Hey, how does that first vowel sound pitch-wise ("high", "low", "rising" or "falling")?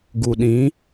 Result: low